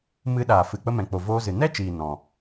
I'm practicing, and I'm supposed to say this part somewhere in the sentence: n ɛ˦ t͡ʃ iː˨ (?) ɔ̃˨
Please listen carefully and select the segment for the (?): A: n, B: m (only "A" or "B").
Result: A